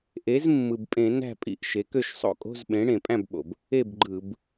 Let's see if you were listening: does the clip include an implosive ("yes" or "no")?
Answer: yes